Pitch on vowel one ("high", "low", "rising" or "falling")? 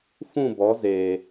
falling